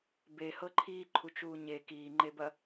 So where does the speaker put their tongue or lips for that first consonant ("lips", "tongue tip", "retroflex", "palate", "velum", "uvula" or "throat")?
lips